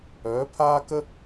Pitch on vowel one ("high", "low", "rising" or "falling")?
rising